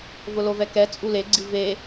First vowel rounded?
yes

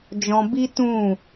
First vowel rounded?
yes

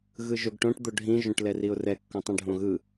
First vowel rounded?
no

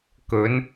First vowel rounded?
yes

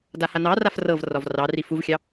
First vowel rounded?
no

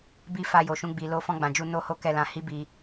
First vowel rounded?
no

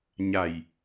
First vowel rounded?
no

